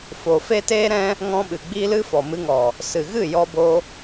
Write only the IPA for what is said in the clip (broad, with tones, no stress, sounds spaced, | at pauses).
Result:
f o˨ f e˦ t eː˦ ɾ ɛ̃˦ | ŋ ɔ̃˧ ɓ ɨ˨ ɡ͡b i˧ l ɨ˧ f ɔ˨ m ɨ˧ ŋ ɔ˨ | s ɨ˨ ɣ ɨ˦˨ j ɔ˧ b o˧